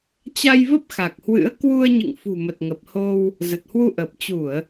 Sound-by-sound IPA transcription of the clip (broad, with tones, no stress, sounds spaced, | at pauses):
t͡ɕ a˧ j v ə˦˥ p̚ x a˨˩ k̚ h w ɨ̰˧˥ ə̯ k w u˧ ə̯ ɲ ɨ̰˧˨ ŋ f ṳ˨˩ m ə˨˩ t̚ ŋ ə˨˩ p̚ h o˧ w | z ə˨˩ t̚ h w u˧ ʔ əː˨˩ p̚ t͡ɕ u˧˩˨ ə̯